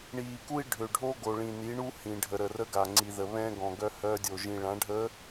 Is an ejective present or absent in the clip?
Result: absent